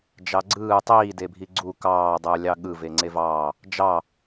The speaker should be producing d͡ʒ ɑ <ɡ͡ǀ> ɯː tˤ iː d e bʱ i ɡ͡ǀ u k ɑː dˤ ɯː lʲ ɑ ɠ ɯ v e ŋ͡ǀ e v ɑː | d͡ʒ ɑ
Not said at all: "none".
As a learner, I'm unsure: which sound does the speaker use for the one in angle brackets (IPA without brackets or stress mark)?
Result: ɡ͡ǀ